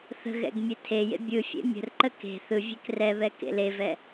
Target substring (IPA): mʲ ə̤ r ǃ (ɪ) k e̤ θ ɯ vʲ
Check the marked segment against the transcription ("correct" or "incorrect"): incorrect